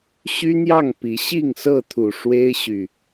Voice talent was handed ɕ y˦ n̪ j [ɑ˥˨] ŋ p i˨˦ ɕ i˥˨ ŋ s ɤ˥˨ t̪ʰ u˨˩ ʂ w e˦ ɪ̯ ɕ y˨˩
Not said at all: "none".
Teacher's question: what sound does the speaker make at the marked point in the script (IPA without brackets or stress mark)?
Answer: ɑ˥˨